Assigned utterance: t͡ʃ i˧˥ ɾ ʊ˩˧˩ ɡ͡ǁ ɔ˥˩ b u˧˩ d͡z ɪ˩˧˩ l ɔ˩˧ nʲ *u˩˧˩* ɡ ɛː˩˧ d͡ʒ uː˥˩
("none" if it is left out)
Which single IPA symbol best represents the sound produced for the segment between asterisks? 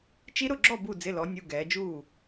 u˩˧˩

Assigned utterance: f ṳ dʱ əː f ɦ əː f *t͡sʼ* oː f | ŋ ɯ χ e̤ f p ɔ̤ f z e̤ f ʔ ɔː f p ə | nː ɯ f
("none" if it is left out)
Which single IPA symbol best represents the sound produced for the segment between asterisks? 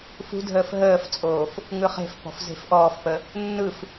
t͡sʼ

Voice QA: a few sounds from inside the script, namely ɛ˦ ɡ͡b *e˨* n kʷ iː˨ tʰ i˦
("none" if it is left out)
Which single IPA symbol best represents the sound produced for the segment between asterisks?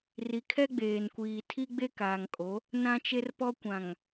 eː˨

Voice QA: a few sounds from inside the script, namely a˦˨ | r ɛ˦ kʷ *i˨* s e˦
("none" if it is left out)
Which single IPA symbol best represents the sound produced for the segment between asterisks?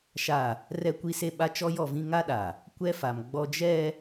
i˦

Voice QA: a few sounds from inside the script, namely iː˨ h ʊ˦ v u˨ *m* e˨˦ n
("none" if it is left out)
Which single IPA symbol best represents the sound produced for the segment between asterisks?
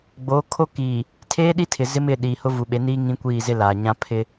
ɓ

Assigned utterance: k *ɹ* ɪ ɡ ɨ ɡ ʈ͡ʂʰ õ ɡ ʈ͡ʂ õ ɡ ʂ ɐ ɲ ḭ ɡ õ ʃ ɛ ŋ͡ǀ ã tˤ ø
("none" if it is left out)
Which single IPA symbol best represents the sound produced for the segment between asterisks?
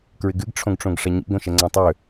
ɹ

